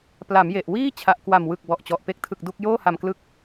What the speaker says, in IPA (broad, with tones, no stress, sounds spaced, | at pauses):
p l a˩˦ m j e˨˩ ʔ w iː˥˩ t͡ɕʰ a˨˩ ʔ k w a˨˩ m w ɯ˨˩ k̚ b ɔ˨˩ ʔ t͡ɕ ɔ˨˩ ʔ p e˦˥ k̚ tʰ ɯ˨˩ k̚ d u˥˩ k̚ j oː˥˩ h a˨˩ m k l ɯ˦˥ k̚